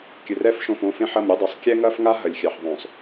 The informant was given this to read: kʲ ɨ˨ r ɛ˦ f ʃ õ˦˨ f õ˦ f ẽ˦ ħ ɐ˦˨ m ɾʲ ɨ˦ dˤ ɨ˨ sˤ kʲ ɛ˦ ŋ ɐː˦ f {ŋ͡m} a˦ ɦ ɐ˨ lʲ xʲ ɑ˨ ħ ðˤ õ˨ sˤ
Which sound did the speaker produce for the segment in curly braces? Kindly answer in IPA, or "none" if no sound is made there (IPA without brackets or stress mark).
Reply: ŋ